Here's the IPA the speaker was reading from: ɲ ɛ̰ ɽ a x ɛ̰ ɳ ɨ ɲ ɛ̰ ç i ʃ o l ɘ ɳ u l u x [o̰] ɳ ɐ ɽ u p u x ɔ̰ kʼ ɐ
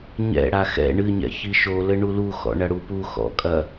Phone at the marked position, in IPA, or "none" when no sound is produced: ɔ̰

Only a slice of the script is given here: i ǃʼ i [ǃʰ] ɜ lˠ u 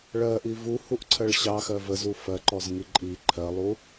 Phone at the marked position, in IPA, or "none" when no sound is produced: ǃʰ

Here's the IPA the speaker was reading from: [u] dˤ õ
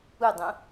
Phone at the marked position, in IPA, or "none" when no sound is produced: u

